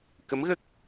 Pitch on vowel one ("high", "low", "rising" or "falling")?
rising